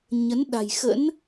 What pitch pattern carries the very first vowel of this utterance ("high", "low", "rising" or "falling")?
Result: rising